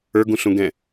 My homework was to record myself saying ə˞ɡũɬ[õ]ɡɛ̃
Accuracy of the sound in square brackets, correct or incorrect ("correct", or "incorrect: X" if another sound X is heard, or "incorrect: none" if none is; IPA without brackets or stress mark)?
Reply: incorrect: ũ